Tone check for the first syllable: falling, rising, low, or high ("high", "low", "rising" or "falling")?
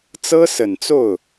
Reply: high